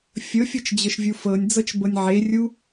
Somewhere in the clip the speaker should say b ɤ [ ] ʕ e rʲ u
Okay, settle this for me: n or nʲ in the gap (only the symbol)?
nʲ